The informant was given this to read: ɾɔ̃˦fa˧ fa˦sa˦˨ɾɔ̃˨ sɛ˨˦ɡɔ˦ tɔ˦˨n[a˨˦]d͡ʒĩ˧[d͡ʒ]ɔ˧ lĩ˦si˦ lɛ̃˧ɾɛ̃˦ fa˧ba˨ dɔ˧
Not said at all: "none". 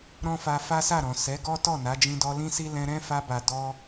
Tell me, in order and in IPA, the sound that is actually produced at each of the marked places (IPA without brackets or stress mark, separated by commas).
a˨˦, d